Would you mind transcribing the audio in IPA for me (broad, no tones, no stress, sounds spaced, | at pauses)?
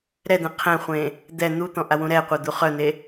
ɾ ɛ d̪ ɛ̃ qʰ ɛ̃ χʷ ẽ | d̪ ɛ n̪ u t̪ ɔ̃ ʔ a w ũ ɾ ɛ qʷ œ d̪ u χ œ n̪ e